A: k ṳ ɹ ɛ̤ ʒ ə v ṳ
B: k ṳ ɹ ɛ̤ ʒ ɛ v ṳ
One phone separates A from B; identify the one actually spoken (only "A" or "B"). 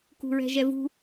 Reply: B